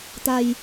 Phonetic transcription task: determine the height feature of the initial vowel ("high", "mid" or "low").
low